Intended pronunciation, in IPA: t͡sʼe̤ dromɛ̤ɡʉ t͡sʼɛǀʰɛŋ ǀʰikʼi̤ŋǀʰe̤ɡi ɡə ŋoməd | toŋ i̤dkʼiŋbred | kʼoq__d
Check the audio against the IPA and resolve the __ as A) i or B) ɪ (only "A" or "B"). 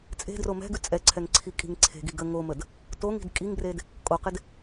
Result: B